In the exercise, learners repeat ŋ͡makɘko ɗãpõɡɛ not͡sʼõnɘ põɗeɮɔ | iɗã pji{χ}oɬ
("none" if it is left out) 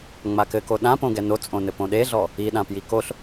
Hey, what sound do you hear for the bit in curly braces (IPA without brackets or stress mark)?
k